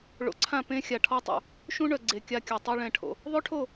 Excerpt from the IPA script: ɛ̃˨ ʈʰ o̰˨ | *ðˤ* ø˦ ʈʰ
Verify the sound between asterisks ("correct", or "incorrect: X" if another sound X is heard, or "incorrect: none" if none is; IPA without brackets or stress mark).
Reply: correct